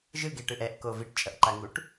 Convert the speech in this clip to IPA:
ʒɯɡeʈɯʔ ɛʔko viʈt͡ʃʼʌʔǃaŋuʈ

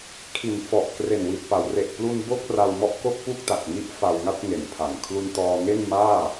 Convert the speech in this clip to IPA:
kʰi˩˦n fɔ˨˩ʔ kre˨˩nwi˨˩t̚pa˩˦w re˨˩ʔplu˧n bo˥˩k̚ra˧w mɔ˥˩ʔko˥˩k̚pu˥˩k̚ ta˨˩k̚ŋi˦˥ʔ fa˧wŋa˥˩t̚ŋe˩˦npʰa˨˩n kʰlu˧ntɔː˧ ŋe˥˩nmaː˥˩

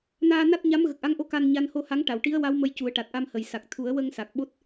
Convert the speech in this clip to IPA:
naː˧na˦˥t̚ ɲa˧˥mɣə˨˩k̚ʔa˧˥ŋʔo˧˥ ka˧n ɲa˧n ho˧ha˧˥ŋ ʈa˨˩˨wʈi˧˥ə̯wa˧˥w mə˧˥jcu˨˩˦ə̯ ʈa˨˩t̚ʔa˧mhə˨˩jsa˨˩k̚ t̪ʰu˨˩˦ə̯wə˧ŋ sa˨˩k̚ɓo˦˥t̚

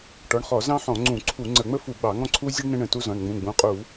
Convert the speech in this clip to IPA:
ʈɔ˩˧˩ɳχɔ˧˩˧ zɑ̃˥ħɔ̃˧˩˧ŋ͡ǀũ˧˩˧ǀʰu˧˩˧ ŋ͡ǀə˧˩˧ŋ͡mə˥fu˧˩˧ɡ͡bɑ˧˩˧ ŋɔ̃˥ǀʰu˥ zʲə˥ɳ nə̃˥ɳə̃˩˧˩tu˥zɔ̃˩˧˩ɳ ŋ͡mũ˩˧˩ ɡ͡bũ˩˧˩qʼu˧˩˧

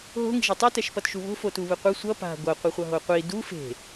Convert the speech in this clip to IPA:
ɦo̤ ŋi̤ʒetˤɯ tɛʃpʌtʃuβo̤ fotuβɯqʷɯ sʷʌ pa̤ ɡʷʌ qʷʌχʷʌɦoqʷi du fe̤

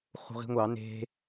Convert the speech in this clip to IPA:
χṳʁi̤ŋʷɑ ne̤

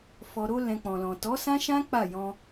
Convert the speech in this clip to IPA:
fɔ˨ɾo˧ lɛ̃˨ k͡pɔ̃˨lɔ̃˨ tɔ˨˦sã˦ ʃã˦ k͡pa˦˨jɔ̃˧

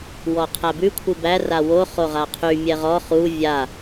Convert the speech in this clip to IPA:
wɔqʰæbʉ kʷʰɨbæ rawo χoʁaqʰy mʲɛʁɔ χu vʲa

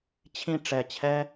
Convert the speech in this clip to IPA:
t͡ɕʰĩ˥˧ ʈ͡ʂɛ˧˩t͡ɕʰɛ˥

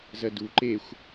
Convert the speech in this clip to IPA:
zɜdu ǃexʷ

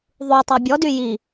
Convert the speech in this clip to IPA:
ðˤutˤœ bʲɔdy ji

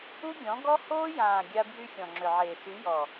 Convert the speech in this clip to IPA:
u˦ɡʲɔ̃˨˦ɡɔ˦ hoː˦jãː˨ ɡʲa˦ bjy˦ xʲɔ̃˨ŋ͡ǁʏ˨ʕeː˨ sy˨˦jɔ˨

